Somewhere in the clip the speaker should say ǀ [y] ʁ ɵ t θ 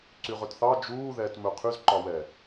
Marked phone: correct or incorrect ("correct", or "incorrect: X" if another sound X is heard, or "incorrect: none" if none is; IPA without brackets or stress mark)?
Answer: correct